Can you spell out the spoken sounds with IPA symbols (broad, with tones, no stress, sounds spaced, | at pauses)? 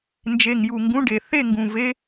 n d͡ʒ e˨˩ ŋ j u˨˩ ŋ ɡ ũ˧˥˧ ɖ e˨˩˦ θ e˥˨ ŋ ɡ ũ˨˩ v e˦˥